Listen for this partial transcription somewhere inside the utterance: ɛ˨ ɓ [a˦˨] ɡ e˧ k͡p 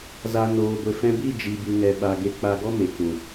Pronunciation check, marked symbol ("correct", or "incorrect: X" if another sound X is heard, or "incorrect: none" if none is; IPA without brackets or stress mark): incorrect: a˨